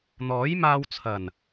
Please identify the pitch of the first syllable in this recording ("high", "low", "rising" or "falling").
rising